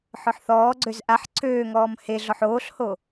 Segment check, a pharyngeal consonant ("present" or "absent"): present